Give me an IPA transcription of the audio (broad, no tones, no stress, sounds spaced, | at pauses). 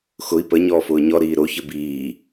x ʊ i̯ p ə ɲ ɔː f ʊː ɲ ɔ ɾ iː ɾ o ç ɘ b iː